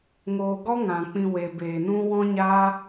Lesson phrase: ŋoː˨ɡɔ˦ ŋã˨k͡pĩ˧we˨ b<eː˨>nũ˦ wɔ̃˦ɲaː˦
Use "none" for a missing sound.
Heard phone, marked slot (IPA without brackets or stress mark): eː˨